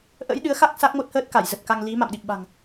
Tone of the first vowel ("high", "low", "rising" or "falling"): rising